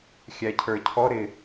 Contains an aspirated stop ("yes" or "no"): yes